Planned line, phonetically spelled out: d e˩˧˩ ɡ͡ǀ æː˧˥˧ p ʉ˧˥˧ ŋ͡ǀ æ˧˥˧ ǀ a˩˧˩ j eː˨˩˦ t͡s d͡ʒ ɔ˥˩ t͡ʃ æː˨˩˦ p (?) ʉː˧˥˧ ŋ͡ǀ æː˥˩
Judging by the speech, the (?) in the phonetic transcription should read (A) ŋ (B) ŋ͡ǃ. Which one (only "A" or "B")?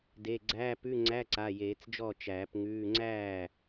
A